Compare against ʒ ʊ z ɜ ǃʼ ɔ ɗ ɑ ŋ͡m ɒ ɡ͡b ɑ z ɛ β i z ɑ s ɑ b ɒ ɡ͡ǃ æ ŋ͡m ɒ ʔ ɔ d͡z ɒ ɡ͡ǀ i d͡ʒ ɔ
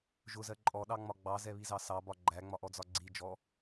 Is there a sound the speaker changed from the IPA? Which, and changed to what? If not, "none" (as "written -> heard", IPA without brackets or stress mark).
none